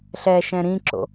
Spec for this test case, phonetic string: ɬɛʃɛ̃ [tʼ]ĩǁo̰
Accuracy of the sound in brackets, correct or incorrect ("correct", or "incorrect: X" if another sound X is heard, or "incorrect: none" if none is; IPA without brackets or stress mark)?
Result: incorrect: ɾ